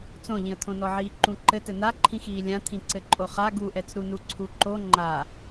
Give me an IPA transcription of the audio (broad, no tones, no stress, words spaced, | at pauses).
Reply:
t͡sõʎĩə̯t̪ʰõnɔ ʕiːǃũǃɘ tɘn̪aǃʰĩxiː lʲã t̪ʰĩǀɘǃʼoχa ɡuʔɛt͡sɾunu ǀʰuǃo ŋ͡ǃa